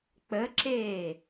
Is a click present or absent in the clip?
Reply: present